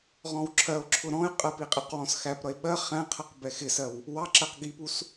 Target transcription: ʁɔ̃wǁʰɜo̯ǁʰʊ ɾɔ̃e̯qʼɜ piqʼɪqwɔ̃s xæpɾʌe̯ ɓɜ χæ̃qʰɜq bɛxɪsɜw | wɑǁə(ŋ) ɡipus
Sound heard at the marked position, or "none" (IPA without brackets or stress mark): q